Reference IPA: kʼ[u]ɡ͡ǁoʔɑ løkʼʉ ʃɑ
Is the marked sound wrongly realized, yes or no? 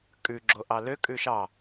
yes